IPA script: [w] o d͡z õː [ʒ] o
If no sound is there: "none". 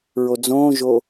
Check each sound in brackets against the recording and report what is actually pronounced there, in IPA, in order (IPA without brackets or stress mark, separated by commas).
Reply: ɹ, ʒ